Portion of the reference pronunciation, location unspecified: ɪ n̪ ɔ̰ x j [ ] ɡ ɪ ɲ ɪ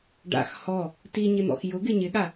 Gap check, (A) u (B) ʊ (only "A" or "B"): B